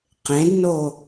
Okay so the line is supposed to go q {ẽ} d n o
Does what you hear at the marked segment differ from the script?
no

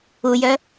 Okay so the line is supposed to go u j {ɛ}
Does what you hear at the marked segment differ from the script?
yes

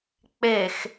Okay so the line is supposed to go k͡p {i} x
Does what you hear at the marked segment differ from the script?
yes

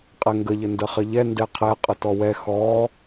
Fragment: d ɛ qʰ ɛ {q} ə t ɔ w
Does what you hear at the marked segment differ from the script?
yes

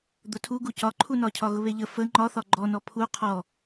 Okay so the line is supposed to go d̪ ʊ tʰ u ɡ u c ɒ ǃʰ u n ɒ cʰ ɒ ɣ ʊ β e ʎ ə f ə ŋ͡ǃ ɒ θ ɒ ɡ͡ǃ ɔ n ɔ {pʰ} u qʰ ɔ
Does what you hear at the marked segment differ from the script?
no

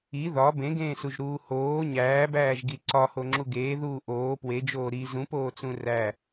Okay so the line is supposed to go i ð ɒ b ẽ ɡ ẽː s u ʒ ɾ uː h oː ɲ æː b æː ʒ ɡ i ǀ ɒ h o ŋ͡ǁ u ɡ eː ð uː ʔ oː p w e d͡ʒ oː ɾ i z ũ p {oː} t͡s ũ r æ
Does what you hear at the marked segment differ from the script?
no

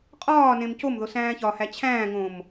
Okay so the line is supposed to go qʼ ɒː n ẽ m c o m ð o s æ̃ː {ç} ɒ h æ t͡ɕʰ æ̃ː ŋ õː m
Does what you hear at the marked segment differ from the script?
no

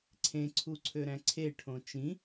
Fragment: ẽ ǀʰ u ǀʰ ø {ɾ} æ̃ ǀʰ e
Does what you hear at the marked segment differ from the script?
no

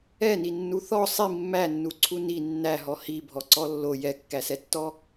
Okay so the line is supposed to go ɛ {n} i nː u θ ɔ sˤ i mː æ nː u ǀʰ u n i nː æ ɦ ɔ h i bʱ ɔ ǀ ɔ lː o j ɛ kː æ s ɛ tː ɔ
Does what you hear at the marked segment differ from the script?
no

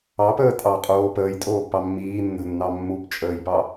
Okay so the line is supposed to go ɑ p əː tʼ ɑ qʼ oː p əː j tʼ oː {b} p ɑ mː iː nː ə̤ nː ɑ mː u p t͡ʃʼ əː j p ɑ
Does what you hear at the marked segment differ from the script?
no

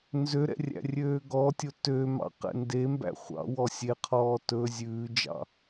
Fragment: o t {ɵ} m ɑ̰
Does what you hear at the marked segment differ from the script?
yes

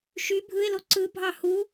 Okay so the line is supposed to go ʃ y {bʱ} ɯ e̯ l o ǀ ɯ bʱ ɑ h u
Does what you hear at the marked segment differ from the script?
no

